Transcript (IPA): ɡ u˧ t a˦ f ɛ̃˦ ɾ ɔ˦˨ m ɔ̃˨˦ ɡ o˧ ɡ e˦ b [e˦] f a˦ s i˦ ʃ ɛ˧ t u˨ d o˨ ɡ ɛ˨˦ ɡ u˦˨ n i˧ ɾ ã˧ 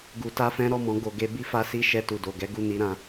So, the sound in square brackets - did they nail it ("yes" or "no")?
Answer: no